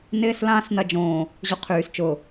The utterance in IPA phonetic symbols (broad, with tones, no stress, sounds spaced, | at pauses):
n ɪː˦ s l ãː˦ s n ɐ˦ d͡ʒ õː˨ | ʑ ʊ˦ qʰ yː˨ s t͡ʃ ʊ˨